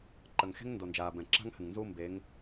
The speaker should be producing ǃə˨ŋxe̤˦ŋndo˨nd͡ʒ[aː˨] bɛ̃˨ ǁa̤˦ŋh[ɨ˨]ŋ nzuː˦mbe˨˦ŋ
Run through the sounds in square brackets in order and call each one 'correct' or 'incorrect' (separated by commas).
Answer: correct, correct